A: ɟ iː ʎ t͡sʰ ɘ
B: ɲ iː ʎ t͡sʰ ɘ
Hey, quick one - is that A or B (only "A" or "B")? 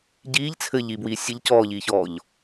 A